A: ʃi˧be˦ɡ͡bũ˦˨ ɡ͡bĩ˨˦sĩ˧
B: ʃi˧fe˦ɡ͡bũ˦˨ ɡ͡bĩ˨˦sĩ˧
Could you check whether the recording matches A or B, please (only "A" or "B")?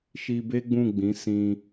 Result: A